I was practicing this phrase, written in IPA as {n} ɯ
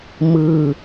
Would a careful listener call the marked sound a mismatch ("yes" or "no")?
yes